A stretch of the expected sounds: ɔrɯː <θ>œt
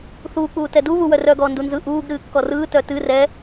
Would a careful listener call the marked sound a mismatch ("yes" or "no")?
yes